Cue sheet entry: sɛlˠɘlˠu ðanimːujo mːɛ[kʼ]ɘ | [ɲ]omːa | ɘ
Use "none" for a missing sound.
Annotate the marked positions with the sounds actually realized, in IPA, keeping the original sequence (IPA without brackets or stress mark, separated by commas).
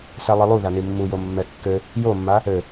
kː, j